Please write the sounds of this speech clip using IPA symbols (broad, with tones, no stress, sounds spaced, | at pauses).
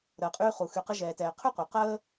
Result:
ɾ əː˩ qʼ yː˧ χ u˩ x y˩ q ə˧ ʒ ɛː˩ t ɛː˩ qʰ y˥ qʷ œ˩ q əː˥